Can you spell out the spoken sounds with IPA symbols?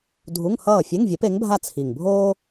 dʱ u˧˥˧ ŋ h ʌː˥˩ fʲ e˧˥˧ ŋ vʲ e˨˥ p e˨˥ ŋ bʱ a˥˩ t͡sʰ i˨˩ ŋ bʱ oː˥

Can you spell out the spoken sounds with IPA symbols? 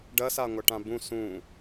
ɖ ɐ s a ŋʷ a ʈ ã b ũ s ũ

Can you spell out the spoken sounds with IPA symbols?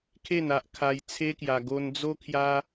kʰ e˥˧ n a˦ ʔ kʰ a˧ j t͡sʰ e˦ k j a˧ ɡ o˧ n d͡z o˦ kʰ j a˦

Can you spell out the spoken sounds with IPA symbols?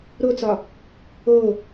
ɾ o t͡s ɒ | o

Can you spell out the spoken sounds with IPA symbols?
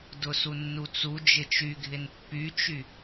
d ʊ s u nː u t͡s u d͡ʒ ɪ t͡ʃ y ɡʱ ɪ n pː y t͡ʃ y

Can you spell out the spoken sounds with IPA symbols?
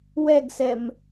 w ɛ ɡ s ɛ m

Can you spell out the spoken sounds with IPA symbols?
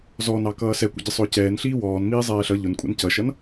z ɔ n ɑ k ʌː s ɛ kʷ ə̰ ɟ ɪ sˤ ʊː c ɛː n ɬ iː w ɔː n m iː zˤ ɛː ɬ ʌ ʎ ʊ n kʷʼ ɛ̰ n c ʌ ʃ ʌ n

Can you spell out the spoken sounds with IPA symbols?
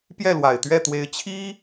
p j ɛ˥˩ l w a˨˩ ɪ̯ t̪ ɥ ɛ˥˩ t̪ w e˧˥ ɪ̯ t͡ɕʰ i˥

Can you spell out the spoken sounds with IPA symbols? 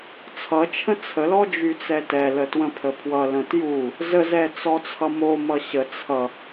t͡sʰ ʌ t͡ʃʰ ə̃ t͡sʰ ə l ɔ d͡ʒ y t͡s ɛ t ɛ l ə t w ə̃ pʰ ə pʰ w ʌ l ə̃ t j u | z ə z ɛ t͡s ɔ t͡sʰ ʌ m o m ʌ ɕ ə t͡sʰ ʌ

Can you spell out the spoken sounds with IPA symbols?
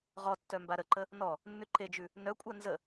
ʁ ɔ tː œ m b a ɾ ə ǃ ə | n ɔ | nː ʉ ǃ e d͡ʒ ʉ | n œ kʷʼ a n z ə

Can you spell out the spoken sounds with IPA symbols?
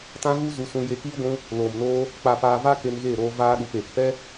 t ã˧ ɣ u˦ z u˧ s ũ˧ j e˧ k iː˦ ɡʷ ũ˧ | l oː˨ m n oː˧ | k͡p a˨ p aː˨ v a˧ k e˧ n ɣ eː˦˨ ɾ oː˧ v aː˧ ɗ u˨ p eː˨ k p ɛ˦

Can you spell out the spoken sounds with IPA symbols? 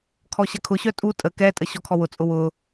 kʰ ɔ ɕ ɐ kʰ ʊ ɕ œ tʼ u tʼ ə k ɛ tʼ ə ɕ ɔ kʰ ɔ w ʊ t͡sʼ ʊ w ʊ

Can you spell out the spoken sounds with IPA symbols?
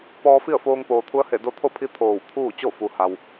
p ɔː˧ f i˥˨ ə̯ f oː˧ ŋ p oː˩ t̪ʰ u˧˥ ə̯ h e˧˩ d o˧˥ t̪ʰ o˥˨ pʰ i˧˥ t̪ʰ oː˧˩ w t̪ʰ uː˥˨ t͡ɕ o˥˨ f u˩ h a˩ w

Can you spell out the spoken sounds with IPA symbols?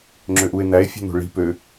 ŋ͡ǁ ø ʔ u e̯ n̪ æ e̯ fʲ ṳ n̪ o̤ ɭ i̤ p ø

